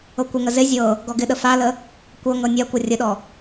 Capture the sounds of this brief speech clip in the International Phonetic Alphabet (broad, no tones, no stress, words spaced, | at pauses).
ɤkʷɪŋə zɪ zʲɤ | ɡɔɡɪɗə falə | kʷɤŋɤ nʲa kʷɤrʲəɗɔ